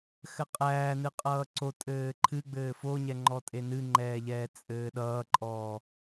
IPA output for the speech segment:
xɘqʼæːnɨ qʼʌːǀotʼɘː ǃʰɨɡ͡bɘː foɲɛ ŋ͡ǃɔtʼenɨŋ͡ǃɛː ʎɛːt͡sʼɘːɗʌːǃʼɔː

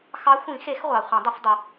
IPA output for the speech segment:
xɑ˨˥xʷĩ˨˩˦xe˨˩˦x ʁʷɑ˨χʷə̃˨˩˦dˤə˨˩˦f dˤə˨

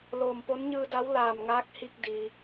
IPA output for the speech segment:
loː˧˩mpo˧˥n ɲɯː˧da˧˥w laː˧˩mŋaː˧˥k̚ hi˧k̚ di˩

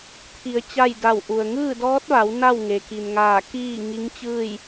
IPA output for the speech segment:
t̪ʰi˩˧ə̯ t͡ɕa˥˨jda˧˩wʔu˩ə̯ ŋɯː˥˨dɔː˧˥t̚ʋa˩˧w na˥˨w ŋe˩ki˩nŋaː˧˩ kiː˥˨ ŋi˧˥ŋt͡ɕɯː˥˨j

